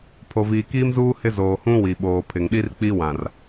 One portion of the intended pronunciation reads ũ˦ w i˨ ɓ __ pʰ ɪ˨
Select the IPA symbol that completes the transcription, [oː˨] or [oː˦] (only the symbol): oː˨